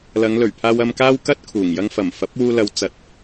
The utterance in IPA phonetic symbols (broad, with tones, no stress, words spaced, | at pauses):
lɐ˨˧ŋlɵ˨˩ɥpʰaː˧w ɐ˧mkaː˥wkɐ˥t̚kʰuː˨˩ŋ jɐ˧ŋfɐ˨˩mfɐ˨˥p̚ wuː˧lɐ˨˧w t͡sɐ˨˥t̚